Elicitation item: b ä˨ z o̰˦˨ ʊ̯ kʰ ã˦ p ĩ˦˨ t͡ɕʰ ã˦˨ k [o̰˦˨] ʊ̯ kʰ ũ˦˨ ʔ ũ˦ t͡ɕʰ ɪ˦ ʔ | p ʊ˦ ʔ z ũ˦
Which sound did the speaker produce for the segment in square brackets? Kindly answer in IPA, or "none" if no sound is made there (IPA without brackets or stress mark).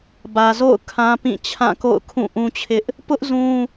o̰˦˨